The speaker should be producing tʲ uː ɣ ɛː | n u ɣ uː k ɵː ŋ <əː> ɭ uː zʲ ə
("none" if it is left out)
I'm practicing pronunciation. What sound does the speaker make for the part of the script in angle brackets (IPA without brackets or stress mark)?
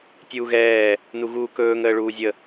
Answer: əː